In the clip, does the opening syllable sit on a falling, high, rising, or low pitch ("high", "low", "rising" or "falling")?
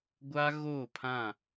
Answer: high